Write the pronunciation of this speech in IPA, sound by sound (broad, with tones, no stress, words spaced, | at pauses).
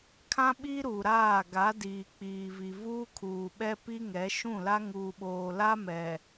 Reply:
kʰã˦ɓiː˦ɾuː˨ ɾaː˦˨ ɡa˨˦diː˨ k͡piː˨vi˨ vuː˦kʰuː˨ɓɛ˦ pi˦ŋɛ˨˦ʃũ˦˨la˦ ŋuː˨ɓoː˨la˦ mɛ˨